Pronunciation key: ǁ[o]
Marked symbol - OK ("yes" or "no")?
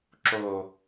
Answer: yes